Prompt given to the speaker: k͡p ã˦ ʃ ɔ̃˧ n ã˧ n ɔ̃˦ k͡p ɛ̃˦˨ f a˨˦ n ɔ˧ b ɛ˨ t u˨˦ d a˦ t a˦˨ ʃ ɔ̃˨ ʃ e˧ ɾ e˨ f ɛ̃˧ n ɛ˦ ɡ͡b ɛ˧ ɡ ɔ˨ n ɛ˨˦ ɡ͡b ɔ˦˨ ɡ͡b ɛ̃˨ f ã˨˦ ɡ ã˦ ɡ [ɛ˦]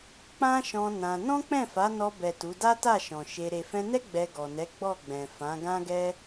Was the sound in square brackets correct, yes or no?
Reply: yes